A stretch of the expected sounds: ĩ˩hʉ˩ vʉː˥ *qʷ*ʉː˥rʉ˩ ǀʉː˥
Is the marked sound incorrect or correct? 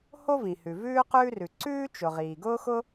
incorrect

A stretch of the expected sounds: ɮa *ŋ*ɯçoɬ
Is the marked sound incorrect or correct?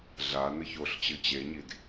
incorrect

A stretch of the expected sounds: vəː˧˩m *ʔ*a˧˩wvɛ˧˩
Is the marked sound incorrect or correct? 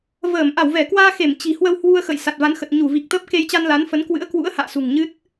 correct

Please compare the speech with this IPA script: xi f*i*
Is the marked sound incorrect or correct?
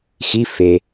incorrect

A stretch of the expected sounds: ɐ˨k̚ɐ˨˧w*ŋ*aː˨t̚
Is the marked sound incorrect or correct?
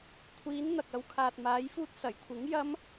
incorrect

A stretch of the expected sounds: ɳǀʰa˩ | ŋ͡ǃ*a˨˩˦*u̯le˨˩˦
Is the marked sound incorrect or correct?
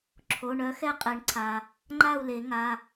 incorrect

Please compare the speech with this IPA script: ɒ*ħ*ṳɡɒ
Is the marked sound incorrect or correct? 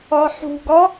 correct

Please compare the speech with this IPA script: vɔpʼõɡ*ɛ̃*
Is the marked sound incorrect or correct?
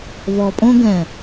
correct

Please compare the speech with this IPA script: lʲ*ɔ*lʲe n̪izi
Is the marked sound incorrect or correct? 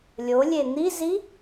incorrect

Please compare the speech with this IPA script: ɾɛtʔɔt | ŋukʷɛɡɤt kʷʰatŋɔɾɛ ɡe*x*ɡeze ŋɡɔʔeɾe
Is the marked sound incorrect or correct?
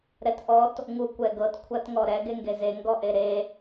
incorrect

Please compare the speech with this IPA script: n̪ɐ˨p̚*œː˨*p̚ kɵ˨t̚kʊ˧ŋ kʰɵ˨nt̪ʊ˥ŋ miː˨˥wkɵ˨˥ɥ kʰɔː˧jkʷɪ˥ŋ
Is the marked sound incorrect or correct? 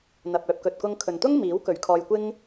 correct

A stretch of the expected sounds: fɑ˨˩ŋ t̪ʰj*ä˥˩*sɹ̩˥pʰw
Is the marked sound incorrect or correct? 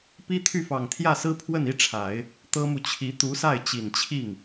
correct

